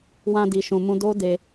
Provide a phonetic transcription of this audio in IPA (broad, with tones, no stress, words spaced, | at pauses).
wã˧di˨ʃũ˨mũ˧ do˦ de˧